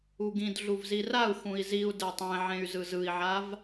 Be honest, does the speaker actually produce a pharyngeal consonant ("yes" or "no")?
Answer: yes